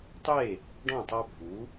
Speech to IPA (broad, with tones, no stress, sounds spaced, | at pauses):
tˤ e˥˩ | ɖ ɔ̃˥˩ tˤ a˦ bʱ u˩˥